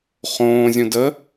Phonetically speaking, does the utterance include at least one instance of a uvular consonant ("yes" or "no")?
yes